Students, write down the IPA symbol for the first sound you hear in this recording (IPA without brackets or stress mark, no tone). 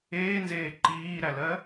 eː